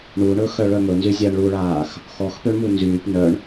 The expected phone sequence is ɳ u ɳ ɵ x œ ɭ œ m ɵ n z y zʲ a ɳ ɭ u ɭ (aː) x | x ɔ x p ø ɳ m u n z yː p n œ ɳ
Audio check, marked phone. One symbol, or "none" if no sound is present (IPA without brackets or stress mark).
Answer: aː